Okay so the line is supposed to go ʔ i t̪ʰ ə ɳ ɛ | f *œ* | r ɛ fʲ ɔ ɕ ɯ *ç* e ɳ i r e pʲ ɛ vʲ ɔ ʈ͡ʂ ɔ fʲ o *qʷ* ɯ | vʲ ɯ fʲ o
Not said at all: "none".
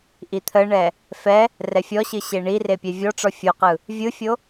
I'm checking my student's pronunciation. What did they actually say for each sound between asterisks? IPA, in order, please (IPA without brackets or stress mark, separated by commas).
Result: ɛ, ɕ, q